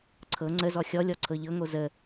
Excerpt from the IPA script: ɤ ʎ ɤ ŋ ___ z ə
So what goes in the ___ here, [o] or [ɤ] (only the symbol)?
o